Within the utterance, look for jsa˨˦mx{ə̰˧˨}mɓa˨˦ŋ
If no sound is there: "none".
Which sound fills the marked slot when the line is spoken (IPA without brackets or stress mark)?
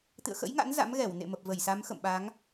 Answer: ə̰˧˨